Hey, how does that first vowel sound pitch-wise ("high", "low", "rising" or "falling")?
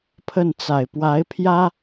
falling